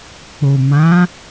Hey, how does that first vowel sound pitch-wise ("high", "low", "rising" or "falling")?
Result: low